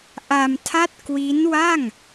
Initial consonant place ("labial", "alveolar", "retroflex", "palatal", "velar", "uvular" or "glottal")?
glottal